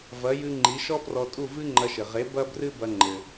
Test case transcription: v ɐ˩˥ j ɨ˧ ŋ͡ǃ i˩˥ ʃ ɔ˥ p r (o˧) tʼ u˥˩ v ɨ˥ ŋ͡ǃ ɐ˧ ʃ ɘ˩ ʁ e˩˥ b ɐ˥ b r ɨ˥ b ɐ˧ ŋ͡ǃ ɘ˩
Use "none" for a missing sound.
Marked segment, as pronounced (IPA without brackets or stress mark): ɔ˧